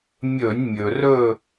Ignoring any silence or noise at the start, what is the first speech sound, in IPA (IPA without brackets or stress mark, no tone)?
mʲ